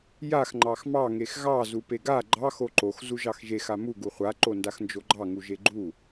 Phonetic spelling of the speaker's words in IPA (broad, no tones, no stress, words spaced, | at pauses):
jax ŋ͡ǃɑxmɑ ŋexɣɑ zupeɡa ɡ͡ǃɑx oǃox zuʒɑxʒex amu ɡuχʷa ǃondaxnd͡ʒoɡ͡ǃɑ ŋuʒeɡ͡ǃu